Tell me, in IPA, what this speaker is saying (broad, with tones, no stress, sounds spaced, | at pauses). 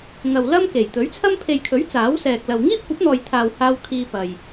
ŋ ɐ˨ w l ɐ˥ m k e˨˩ j t̪ ɵ˨˥ ɥ t͡sʰ ɐ˥ m pʰ e˨ j kʰ ɵ˨˥ ɥ t͡s aː˨˥ w s ɛː˨ k̚ l ɐ˨ w ŋ iː˥ p̚ kʷ ɐ˨˥ p̚ n̪ ɔː˨ j t̪ʰ aː˨ w h aː˧ w kʰ iː˧ p ɐ˨ j